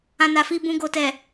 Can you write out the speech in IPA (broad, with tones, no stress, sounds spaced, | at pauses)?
ã˧ n a˨ f i˧ b ũ˧ ɡ o˨ t ɛ˨